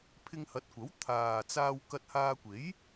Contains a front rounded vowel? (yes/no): no